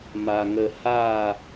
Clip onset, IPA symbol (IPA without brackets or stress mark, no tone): m